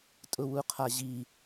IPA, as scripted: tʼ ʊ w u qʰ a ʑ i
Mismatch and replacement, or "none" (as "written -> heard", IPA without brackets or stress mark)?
none